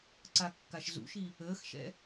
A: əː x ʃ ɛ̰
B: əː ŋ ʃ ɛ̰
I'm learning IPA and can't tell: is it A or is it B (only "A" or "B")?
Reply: A